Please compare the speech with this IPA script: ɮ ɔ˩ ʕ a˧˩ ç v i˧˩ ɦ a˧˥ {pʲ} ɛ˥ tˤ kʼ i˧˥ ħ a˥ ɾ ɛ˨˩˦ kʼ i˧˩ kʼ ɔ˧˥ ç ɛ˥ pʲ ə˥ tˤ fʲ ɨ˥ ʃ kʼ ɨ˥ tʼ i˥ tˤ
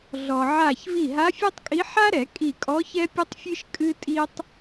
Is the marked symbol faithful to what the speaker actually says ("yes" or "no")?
no